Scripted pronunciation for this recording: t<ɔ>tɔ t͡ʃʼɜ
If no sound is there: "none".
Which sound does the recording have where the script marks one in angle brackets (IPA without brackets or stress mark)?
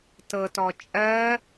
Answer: ɤ